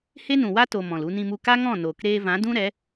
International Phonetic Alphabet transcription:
h e˦ n ũ˨ w a˦ t o˨ m ɔ̃˨ l u˧ n ĩ˧ m u˧ k a˦ ŋ ɔ̃˦˨ n oː˨ k ɾ eː˧ v ã˨˦ d ũ˦ ɾ ɛ˨˦

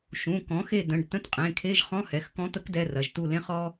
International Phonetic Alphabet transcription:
ʃ ũ˩˧˩ k ɔ̃˩˥ x e˦˨ d ə̃˩˧˩ ɖ t ə̃˧˥˧ t qʼ ẽ˩˧˩ kʰ e˧˥˧ ʒ χ ɔ̃˧˥˧ h ɛ˩˧˩ x k ɔ̃˧˥ t̪ ə˧˥ k d ɛ˧˥˧ r ɐ˩˧˩ ʒ t u˦˨ l ẽ˥ χ ɔ˥

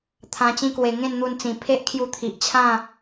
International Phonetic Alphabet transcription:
t̪ʰ ã˧ t͡ɕ ĩ˧ k w e˨˩ ŋ ẽ˥˧ n n̪ u˧ n t͡s ĩ˨˩ pʰ e˦ ʔ kʰ j u˧ t̪ʰ i˨ ʔ t͡ɕʰ ã˥˧

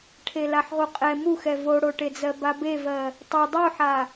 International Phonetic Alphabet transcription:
ʈʰ e l a ħ ʁ u qʼ ɛ m u x ɛ v o ɽ o ʈ e d͡z ɜ b a b e v ɜ | tˤ o dˤ u ħ a

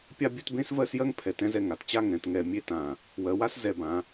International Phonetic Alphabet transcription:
pʲ a˥˧ bʲ ɛ˥˧ t b ẽ˥ s v ɜ˥˧ s j ɜ˥ ŋ pʰ ɛ˧˩ t ɛ̃˥ z ɛ˥˧ ŋ a˩˧ t t͡ɕ a˥˧ ŋ ɛ̃˩˧ t ŋ ɛ˧˩ mʲ e˥˧ t ã˧˩ | w ɜ˩˧ w a˥ s z ɛ˧˩ b ã˩˧

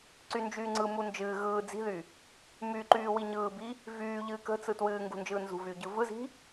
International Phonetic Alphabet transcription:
ǀ y n d͡ʒ yː ŋ͡ǀ ɯ m u n d͡ʒ ɨː ɣ ɯː d͡z i̤ ð y | m y ǃ yː w i ɲ ɯː b i | v yː ʎ ɨː k ə̤ t͡s ɯ t w ɨː ŋ ɡ ṳ n d͡ʒ ɯː n z ṳ v yː ɟ ɯ v ɯ z i̤

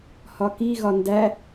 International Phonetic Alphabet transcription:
h ɒ k i ɣ ɒ n d æ

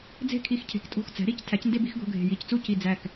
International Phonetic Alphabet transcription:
d͡z e̤˥˩ kʰ i˧˩ x cʰ e̤˩˥ k tʼ o̤˥˩ x t͡s æ̤˩˥ ɾ i˩˥ c tʰ æ˩˥ c n d e˥˧ b i˩˥ x ɡ o̤˧˥˧ ɡʱ e̤˧˩ j i˧˥˧ c t͡s u˥˩ c i˧˩ d͡z æ˧˩ k

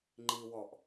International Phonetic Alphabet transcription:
ŋ͡ǃ i w ɔ ʔ

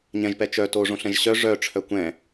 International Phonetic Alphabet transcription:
ɲ ɛ̃ ʒ p ɛ t͡ʃ œ t o ʐ õ ɬ ɛ̃ ʒ ɕ œ ʐ œ ʈ͡ʂʰ œ kʷ ɛ̃

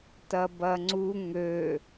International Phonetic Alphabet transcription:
t ɐ b ɐ ŋ͡ǀ u ŋ ø

